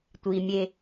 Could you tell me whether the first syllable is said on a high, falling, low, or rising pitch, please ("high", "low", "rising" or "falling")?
low